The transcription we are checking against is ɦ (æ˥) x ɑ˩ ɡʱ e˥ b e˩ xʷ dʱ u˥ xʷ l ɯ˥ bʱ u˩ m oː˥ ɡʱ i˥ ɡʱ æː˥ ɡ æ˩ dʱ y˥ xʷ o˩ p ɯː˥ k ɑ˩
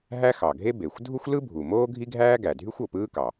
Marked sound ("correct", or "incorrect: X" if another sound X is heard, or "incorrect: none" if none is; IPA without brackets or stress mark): correct